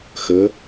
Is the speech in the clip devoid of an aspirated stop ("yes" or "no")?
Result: yes